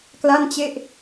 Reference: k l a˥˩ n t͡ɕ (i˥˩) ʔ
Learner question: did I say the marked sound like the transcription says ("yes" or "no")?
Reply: no